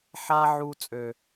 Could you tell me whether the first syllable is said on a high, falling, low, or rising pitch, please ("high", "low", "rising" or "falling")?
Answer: high